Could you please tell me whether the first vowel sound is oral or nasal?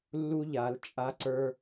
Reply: oral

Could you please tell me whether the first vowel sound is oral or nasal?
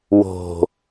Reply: oral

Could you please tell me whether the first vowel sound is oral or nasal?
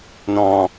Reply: nasal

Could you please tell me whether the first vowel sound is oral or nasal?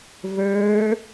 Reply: oral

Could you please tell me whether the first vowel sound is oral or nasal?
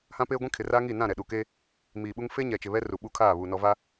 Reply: nasal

